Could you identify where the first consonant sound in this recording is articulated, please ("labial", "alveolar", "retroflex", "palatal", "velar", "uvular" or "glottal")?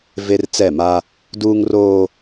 labial